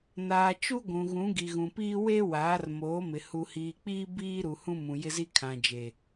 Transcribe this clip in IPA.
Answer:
n aː˨ t͡ʃ u˦ ɡʷ ũ˨ ɣ ũ˨˦ ɡ i˨ ɣ ũ˨ p iː˦ w e˦ w aː˨˦ r m oː˨˦ m ɪ˨ h u˨ h iː˨ k͡p iː˦ b iː˦ ɾ u˨ h ũ˦ m ũ˨ j ɪ˦ z i˦ kʰ ã˨ d͡ʒ e˨

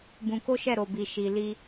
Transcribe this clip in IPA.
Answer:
b ũ˧ k o˦ ʃ ɛ˦˨ ɾ o˨ b i˨ ʃ i˨ l i˧

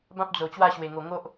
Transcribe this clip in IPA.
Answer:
b ã˦ p̚ d͡z o˨˩ t͡ɕ w a˥˧ ɕ w e˨˩ ŋ o˨˩ ŋ o˦ ʔ

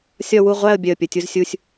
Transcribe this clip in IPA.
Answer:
sʲ ɒ˥˧ w u˥˧ ʁʷ æ˥˧ ə̯ bʲ œ˨˩ ə̯ pʲ ə˨˩ tʲ u˧ z sʲ u˧ sʲ

